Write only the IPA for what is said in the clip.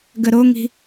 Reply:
ɡ ə ɾ o ŋ i̤

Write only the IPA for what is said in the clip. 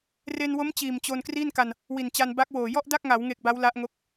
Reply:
r e˧ n w o˦˥ m t͡ɕ iː˨˩ m t͡ɕ o˧ n k r iː˥˩ n k a˧ n | w i˨˩ n t͡ɕ a˧ n b a˦˥ k̚ w oː˨˩ j ɔ˥˩ ʔ d a˥˩ k̚ ŋ a˩˦ w ŋ e˨˩ k̚ b a˦˥ w l a˦˥ ʔ ŋ o˦˥ k̚

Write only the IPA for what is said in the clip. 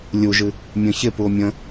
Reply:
lʲ u ʒ ɨ | mʲ ə̃ ç ɪ p u o̯ mʲ ə̃

